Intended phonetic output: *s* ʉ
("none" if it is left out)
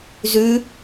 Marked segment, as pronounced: z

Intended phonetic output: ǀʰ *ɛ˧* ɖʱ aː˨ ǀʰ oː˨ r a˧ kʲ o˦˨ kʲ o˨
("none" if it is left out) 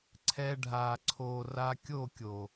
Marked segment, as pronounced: ɛ˧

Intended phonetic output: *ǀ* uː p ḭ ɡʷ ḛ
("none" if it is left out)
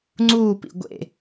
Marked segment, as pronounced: ŋ͡ǀ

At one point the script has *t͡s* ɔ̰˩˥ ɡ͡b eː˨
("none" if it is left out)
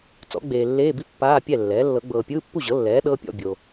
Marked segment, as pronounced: t͡s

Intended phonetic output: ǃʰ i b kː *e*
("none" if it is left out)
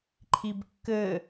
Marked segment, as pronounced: ɘ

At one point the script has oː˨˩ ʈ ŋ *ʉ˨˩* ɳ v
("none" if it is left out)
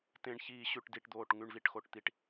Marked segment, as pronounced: ʉ˨˩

